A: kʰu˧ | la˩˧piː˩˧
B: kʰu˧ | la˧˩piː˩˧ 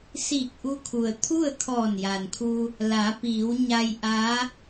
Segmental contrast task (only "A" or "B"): A